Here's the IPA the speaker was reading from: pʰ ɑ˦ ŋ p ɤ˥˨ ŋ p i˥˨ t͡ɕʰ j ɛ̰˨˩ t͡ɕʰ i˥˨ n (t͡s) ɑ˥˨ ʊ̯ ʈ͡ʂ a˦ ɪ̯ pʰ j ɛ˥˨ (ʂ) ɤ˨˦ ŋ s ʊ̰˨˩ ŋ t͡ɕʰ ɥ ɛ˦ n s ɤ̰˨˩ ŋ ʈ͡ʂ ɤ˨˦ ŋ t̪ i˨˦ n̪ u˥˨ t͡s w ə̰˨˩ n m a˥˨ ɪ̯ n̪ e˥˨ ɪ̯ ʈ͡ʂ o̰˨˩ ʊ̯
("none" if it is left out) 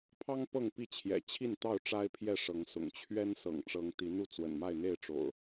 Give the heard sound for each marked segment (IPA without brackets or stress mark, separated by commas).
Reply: t̪, ʂ